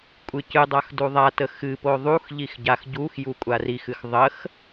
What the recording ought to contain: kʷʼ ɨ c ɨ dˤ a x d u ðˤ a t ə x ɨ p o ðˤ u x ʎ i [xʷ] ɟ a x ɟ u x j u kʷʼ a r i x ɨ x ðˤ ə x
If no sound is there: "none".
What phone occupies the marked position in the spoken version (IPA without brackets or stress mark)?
x